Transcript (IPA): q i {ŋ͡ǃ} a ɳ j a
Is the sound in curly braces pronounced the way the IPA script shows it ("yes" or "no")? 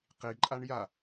no